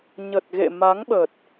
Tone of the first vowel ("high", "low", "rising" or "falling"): low